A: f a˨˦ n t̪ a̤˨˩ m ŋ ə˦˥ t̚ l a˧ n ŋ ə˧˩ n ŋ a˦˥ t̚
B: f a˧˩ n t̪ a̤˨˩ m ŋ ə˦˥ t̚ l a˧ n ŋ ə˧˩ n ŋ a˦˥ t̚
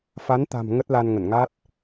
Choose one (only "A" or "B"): A